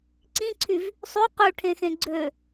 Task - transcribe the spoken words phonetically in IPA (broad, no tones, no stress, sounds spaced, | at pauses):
ǀ ĩ ǀʰ y v | sˤ ʉ q ʉ ʈʰ ẽ x ẽ ɡ͡ǀ ø